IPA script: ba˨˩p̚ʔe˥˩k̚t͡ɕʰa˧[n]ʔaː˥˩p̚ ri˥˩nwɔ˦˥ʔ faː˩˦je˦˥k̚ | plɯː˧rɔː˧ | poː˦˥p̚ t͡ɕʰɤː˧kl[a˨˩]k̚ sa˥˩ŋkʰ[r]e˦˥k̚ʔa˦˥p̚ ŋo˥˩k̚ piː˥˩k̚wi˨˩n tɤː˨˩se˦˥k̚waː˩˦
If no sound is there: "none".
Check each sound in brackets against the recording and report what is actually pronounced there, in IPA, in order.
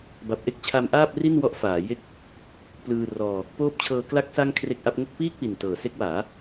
m, a˦˥, r

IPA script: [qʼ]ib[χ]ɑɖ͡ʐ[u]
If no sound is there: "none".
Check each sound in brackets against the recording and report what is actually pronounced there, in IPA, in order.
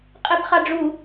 qʼ, χ, u

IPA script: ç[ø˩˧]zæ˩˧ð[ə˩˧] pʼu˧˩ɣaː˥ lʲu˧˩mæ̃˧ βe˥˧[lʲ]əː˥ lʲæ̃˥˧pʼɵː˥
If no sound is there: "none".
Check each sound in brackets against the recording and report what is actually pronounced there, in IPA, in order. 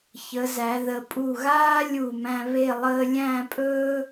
ə˩˧, ə˩˧, lˠ

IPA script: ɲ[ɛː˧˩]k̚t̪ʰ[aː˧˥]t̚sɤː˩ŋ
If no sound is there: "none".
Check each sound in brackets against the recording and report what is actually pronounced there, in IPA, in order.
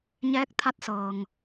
ɛː˧˥, a˧˥

